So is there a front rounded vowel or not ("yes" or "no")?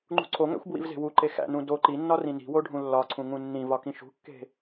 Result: no